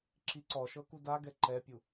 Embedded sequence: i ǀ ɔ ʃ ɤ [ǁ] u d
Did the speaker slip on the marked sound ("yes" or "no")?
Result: yes